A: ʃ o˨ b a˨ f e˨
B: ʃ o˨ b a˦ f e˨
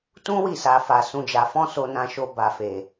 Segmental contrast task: A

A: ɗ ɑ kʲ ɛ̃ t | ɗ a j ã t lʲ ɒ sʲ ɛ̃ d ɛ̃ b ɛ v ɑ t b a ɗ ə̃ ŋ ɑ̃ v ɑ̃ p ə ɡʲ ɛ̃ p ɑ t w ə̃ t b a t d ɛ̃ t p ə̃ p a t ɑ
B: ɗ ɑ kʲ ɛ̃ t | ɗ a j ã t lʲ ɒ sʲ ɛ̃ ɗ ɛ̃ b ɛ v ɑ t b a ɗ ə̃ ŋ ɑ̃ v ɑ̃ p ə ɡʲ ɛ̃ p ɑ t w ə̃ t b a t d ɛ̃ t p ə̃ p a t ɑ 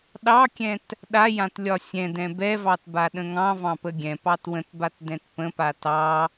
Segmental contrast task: A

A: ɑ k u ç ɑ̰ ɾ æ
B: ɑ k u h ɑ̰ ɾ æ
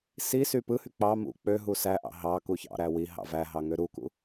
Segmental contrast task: A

